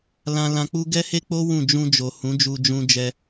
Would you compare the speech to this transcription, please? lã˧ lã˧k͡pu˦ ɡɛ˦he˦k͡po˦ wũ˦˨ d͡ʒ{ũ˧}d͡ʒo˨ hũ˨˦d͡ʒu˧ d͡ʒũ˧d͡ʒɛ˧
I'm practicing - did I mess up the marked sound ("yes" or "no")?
no